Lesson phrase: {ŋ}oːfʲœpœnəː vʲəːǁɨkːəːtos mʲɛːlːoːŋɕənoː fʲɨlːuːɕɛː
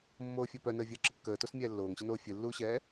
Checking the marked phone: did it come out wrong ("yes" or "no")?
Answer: yes